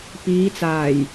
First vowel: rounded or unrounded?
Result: unrounded